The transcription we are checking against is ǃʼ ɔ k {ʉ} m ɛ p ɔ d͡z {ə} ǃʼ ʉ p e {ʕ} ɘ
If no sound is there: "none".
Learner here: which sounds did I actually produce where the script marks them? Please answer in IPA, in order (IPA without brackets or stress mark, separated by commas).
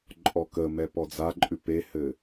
ə, a, h